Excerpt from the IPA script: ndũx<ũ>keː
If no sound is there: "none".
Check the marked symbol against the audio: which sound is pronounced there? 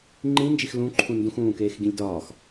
ũː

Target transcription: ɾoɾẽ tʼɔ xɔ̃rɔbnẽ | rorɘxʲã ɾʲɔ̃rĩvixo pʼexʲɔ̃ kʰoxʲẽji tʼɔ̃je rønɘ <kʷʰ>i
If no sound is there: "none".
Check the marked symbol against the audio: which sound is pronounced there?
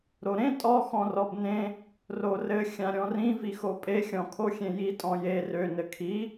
kʰ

